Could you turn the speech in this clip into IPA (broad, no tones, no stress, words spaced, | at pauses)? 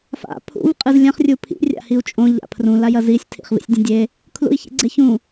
fa̰ pʰṵv qʼɨzlʲãχ rʲupʰḭ rʲa̰hiu̯t͡ʃʼõ ʎa̰pʰrũ lajɐzisʲ tʰḭχvḭsʲdʲɐ̃dʲe | kʰlṵi̯çḭɡ͡ǀeçũ